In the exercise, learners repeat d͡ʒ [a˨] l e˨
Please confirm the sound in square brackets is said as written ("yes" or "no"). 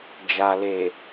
yes